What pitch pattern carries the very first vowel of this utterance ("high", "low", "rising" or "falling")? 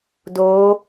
rising